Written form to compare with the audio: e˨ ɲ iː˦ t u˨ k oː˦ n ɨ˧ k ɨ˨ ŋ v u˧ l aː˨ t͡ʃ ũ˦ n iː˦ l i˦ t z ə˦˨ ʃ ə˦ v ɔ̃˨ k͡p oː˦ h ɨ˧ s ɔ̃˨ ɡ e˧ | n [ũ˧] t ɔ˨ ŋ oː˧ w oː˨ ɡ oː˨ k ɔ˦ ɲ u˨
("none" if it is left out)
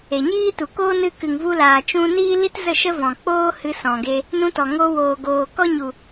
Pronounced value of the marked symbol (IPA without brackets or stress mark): ũ˧